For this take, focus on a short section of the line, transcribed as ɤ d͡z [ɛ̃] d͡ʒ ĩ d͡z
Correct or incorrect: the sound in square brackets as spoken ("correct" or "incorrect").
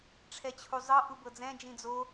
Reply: correct